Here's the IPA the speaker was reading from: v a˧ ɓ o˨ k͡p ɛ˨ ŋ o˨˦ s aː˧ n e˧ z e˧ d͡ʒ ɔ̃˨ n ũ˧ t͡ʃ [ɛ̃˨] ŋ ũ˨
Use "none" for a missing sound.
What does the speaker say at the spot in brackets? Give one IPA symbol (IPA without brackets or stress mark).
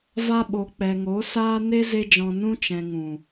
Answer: ɛ̃˨